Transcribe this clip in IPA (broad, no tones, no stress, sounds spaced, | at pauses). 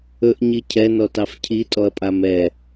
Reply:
ɵ ʔ ɲ i cʰ ɛ n ɔ t ɑ f cʰ i tʼ ɔ ɐ̯ pʼ a m ɛ